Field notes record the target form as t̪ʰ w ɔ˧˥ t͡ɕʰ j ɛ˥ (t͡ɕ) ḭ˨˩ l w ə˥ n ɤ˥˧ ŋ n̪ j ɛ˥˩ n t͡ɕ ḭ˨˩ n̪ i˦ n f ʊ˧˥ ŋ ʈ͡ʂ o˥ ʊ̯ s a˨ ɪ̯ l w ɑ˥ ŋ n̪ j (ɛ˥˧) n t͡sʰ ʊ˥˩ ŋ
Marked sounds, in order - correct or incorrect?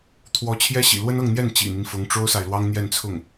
incorrect: ɕ, correct

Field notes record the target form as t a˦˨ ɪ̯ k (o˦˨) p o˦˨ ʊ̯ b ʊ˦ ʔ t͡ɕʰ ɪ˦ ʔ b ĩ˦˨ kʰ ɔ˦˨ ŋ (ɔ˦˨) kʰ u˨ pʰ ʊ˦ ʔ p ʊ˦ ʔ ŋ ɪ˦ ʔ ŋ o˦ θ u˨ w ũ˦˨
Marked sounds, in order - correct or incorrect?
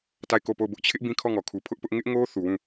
correct, incorrect: ɔ˨

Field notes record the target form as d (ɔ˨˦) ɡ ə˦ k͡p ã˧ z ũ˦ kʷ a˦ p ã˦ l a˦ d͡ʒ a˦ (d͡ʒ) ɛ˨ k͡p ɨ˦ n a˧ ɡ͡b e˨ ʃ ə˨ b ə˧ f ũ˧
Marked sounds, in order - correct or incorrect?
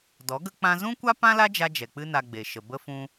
correct, correct

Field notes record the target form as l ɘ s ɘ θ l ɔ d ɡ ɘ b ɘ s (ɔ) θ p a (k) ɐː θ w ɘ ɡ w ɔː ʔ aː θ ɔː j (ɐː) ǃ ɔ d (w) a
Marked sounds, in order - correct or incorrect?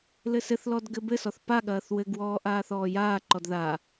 correct, incorrect: ɠ, incorrect: aː, incorrect: ð

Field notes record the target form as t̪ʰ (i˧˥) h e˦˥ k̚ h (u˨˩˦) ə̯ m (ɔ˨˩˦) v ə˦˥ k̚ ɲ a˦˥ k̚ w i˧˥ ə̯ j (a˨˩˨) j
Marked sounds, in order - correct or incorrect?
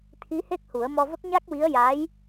correct, correct, incorrect: ɔ˧, incorrect: a˧˥

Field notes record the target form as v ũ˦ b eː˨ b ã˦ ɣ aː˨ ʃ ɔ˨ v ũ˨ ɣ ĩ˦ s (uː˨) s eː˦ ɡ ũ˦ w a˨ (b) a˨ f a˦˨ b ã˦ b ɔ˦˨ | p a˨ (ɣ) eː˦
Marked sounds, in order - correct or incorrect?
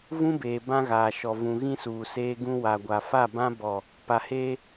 correct, incorrect: ɡʷ, incorrect: h

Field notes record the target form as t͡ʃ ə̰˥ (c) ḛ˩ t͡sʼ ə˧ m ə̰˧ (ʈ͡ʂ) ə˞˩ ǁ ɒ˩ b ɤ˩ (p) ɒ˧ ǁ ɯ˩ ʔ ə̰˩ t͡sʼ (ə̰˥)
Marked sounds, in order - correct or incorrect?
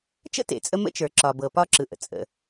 incorrect: t, incorrect: t͡ʃ, correct, incorrect: ə̰˩

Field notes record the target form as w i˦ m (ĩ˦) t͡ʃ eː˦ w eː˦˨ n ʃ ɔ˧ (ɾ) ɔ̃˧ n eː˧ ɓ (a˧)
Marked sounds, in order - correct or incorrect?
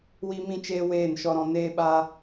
correct, correct, correct

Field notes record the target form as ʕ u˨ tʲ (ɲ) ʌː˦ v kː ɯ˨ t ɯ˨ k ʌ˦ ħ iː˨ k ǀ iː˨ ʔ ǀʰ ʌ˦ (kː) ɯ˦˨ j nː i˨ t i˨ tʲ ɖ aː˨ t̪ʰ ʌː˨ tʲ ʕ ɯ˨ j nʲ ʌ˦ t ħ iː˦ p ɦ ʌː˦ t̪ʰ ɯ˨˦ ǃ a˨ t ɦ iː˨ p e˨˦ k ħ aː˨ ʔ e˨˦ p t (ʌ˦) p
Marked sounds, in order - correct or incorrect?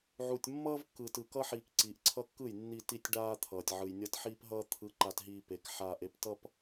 incorrect: mː, correct, correct

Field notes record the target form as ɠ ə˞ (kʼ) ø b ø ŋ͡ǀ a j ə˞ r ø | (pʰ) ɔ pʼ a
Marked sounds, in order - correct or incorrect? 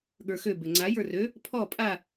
incorrect: x, correct

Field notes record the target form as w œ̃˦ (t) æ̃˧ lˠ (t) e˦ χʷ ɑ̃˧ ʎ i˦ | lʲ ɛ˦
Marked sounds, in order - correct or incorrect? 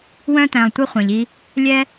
correct, incorrect: tʷ

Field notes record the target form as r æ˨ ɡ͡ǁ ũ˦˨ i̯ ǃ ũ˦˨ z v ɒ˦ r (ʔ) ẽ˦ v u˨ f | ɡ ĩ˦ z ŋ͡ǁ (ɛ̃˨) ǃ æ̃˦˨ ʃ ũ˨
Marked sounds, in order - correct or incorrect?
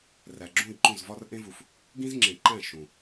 correct, incorrect: ẽ˨

